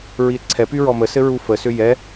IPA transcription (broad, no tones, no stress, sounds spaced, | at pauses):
ɹ i e̯ ǀʰ ɛ p y ɹ ɔ m ə s ɘ ɹ u f ə s ʏ j ɛ